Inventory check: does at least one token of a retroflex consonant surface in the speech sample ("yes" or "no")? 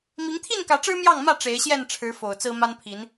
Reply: yes